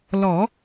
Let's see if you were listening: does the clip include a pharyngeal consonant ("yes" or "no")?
no